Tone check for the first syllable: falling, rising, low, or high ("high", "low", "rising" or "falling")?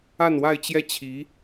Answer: falling